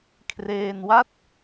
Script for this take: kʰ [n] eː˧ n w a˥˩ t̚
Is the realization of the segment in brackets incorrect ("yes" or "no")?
yes